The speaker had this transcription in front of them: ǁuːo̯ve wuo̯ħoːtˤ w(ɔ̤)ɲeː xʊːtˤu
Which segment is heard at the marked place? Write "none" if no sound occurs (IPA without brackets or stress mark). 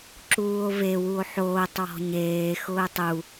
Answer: ɔ̤